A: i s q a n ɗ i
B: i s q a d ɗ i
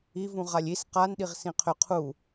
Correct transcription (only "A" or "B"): A